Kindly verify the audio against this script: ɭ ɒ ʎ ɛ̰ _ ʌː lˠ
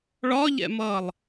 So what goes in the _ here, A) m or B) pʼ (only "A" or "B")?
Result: A